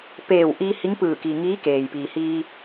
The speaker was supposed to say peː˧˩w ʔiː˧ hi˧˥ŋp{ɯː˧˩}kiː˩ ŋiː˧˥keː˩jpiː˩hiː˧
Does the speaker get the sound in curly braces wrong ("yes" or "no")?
no